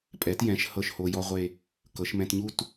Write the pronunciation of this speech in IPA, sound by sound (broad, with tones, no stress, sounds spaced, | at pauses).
pʼ ɛ˩˧ t j ɛ̃˩˧ ʃ h ɤ˥˧ ʃ h o˧ j ɔ˥ ʁʷ e˥˧ | k ɤ˩˧ ʃ m ɛ̃˧ t ɲ u˥˧ t